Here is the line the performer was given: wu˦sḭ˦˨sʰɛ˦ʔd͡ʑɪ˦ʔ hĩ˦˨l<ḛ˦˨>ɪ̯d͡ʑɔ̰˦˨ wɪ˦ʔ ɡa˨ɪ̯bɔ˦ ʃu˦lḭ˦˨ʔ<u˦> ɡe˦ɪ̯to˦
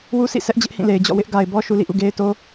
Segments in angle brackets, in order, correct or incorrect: incorrect, incorrect

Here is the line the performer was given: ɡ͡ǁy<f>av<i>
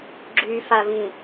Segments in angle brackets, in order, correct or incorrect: correct, incorrect

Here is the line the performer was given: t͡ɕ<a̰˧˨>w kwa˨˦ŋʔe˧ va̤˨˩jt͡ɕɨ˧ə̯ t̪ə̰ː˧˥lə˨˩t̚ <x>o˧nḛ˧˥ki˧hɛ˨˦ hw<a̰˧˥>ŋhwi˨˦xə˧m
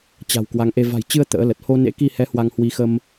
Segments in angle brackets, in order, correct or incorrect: incorrect, incorrect, incorrect

